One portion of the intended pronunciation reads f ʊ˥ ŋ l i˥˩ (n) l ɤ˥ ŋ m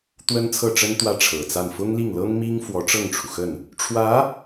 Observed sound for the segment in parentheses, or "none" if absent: ŋ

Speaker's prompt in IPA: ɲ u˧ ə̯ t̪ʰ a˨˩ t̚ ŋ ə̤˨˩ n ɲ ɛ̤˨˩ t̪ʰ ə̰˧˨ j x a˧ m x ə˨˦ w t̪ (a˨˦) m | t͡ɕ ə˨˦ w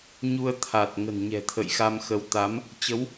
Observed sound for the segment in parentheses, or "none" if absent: a˨˦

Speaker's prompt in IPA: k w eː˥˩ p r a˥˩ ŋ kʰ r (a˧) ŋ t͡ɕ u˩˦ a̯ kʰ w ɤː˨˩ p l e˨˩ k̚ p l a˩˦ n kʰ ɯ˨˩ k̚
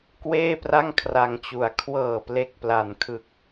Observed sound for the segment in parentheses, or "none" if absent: a˧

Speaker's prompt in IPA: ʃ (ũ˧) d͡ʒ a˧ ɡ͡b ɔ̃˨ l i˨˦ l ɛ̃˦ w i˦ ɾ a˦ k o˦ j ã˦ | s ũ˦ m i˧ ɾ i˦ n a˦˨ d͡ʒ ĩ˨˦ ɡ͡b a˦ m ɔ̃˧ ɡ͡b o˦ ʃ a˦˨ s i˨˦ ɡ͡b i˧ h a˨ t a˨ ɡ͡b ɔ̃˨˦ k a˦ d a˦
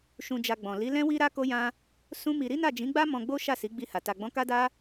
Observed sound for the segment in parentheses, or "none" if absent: ũ˧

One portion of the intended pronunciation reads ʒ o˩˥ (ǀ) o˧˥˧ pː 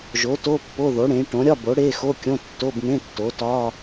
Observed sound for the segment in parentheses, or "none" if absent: t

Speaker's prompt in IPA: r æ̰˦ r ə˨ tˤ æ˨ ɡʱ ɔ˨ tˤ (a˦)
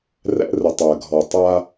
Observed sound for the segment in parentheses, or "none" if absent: a˦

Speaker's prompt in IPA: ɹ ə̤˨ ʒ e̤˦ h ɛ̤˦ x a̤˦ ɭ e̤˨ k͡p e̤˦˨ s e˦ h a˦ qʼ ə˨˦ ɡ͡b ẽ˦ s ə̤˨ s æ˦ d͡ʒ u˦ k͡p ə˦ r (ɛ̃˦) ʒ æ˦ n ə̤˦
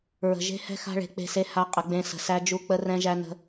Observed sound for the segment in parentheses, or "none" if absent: ɛ̃˦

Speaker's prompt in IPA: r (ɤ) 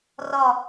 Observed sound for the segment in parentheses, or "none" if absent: ɔ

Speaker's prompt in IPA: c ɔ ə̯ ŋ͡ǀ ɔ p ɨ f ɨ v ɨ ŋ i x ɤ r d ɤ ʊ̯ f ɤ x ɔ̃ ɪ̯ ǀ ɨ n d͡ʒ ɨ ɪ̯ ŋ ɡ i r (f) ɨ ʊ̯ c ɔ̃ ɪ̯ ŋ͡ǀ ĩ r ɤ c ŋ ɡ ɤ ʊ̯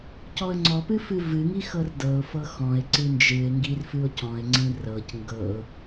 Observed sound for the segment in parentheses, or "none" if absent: f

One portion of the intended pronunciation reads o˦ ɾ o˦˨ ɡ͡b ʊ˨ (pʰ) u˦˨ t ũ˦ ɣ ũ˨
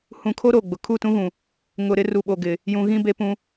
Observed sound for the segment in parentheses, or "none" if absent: kʰ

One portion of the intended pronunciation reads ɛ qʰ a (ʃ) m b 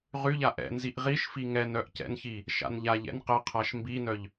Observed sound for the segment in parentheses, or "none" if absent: ʃ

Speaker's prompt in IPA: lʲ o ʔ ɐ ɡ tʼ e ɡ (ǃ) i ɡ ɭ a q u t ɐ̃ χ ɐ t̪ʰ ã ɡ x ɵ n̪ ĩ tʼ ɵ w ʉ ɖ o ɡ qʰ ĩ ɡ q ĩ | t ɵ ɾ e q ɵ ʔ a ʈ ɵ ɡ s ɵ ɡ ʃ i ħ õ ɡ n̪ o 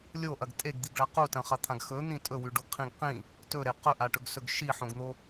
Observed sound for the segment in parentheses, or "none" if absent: d̪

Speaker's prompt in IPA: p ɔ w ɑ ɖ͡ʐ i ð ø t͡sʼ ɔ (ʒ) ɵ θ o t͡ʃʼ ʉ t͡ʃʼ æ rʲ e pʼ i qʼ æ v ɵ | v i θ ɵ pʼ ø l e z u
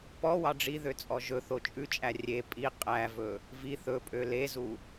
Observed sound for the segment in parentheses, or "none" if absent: ʒ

